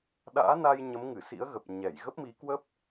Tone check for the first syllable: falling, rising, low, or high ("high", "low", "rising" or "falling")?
rising